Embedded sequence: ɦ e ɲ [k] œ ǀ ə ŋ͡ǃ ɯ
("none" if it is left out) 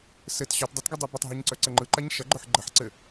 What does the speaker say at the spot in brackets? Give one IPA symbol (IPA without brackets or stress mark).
ǀ